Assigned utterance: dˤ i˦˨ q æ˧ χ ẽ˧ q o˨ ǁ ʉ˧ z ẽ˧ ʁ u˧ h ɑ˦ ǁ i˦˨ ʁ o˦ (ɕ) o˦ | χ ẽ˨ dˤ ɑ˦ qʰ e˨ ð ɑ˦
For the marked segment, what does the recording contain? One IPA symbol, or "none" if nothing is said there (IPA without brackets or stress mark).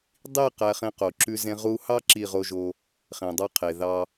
ʒ